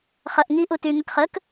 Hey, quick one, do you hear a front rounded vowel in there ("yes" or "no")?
yes